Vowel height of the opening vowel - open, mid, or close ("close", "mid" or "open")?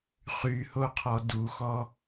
close